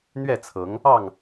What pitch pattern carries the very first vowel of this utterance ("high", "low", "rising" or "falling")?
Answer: falling